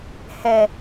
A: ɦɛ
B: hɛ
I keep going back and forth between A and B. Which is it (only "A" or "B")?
B